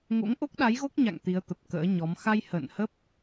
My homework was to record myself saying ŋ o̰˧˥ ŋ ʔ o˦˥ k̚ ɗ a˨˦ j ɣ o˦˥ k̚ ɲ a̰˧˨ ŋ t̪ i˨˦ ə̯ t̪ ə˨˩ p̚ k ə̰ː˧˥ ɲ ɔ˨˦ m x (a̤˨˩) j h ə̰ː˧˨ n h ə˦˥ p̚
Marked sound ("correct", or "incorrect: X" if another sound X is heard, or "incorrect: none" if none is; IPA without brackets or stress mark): incorrect: a˧